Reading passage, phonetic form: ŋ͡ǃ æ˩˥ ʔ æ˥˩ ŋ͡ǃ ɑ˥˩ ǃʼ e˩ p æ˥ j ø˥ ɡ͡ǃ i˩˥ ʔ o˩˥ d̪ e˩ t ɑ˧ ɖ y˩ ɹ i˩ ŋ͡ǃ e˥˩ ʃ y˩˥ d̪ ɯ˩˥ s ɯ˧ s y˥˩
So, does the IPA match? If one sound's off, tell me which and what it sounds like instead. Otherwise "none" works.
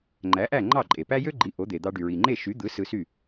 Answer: t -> d̪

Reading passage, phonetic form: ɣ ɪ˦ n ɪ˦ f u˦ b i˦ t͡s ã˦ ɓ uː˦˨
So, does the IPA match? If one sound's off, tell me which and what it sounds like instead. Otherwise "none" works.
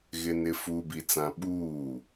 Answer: none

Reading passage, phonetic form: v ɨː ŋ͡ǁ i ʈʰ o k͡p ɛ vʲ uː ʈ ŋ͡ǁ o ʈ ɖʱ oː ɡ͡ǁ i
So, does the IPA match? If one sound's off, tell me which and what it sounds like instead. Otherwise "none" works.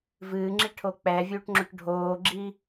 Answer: none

